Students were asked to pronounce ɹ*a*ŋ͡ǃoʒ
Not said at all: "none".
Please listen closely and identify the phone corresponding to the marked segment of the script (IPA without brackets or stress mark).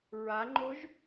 a